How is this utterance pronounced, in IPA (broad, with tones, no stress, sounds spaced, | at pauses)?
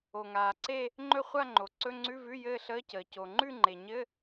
o˩ ŋ aː˩ ǀ e˥˧ | ŋ͡ǃ ɵ˥˧ χʷ a˥˧ ŋ͡ǃ o˩ ǀ ɵ˧˥˧ ŋ͡ǀ ʉ˧˥˧ v ʉ˧˥˧ j ɘː˥˧ ɬ əː˧˥˧ c əː˩ c o˩ ŋ͡ǃ ʉ˥˧ ŋ͡ǃ e˩ ɲ ɘ˧˥˧